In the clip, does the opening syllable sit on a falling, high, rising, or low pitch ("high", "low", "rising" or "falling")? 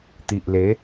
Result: low